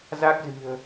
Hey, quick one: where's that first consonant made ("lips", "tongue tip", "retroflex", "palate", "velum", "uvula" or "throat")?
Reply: tongue tip